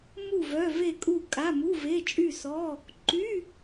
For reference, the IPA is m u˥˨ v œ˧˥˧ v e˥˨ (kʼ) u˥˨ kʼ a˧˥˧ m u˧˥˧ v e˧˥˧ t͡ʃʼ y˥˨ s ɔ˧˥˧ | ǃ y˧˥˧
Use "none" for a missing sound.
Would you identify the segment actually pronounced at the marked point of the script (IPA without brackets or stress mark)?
kʼ